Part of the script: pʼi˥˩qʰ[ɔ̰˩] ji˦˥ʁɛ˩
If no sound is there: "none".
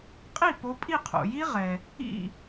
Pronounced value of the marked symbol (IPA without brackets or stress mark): o̰˩